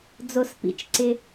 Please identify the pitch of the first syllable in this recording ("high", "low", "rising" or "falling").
low